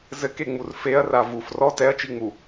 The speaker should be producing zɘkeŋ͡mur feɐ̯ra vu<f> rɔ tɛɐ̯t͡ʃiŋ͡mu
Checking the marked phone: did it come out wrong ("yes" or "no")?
no